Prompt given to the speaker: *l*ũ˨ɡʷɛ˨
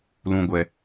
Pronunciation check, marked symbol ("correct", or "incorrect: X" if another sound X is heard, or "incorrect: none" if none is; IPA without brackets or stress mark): correct